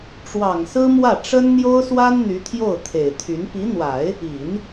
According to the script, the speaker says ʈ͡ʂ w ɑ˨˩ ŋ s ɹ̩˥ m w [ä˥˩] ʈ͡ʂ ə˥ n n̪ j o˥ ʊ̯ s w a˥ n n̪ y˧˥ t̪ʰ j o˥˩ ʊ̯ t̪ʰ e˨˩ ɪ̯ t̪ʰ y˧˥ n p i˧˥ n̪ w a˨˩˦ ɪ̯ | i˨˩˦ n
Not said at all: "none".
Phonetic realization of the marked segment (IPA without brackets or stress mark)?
ä˥˩